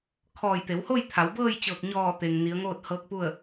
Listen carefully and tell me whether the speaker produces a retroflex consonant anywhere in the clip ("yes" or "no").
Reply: no